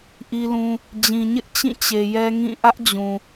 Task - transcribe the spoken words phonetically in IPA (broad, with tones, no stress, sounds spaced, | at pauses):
ʔ i˦ l ũ˦ | d͡ʑ ĩ˨ ɲ ɪ˦ ʔ t͡ɕ ĩ˦˨ t͡ɕ e˨ j ɛ˦ ŋ ĩ˦˨ ʔ ä˦ ʔ d͡ʑ ũ˨